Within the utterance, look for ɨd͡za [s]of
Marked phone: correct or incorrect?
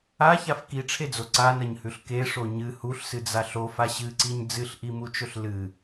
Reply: incorrect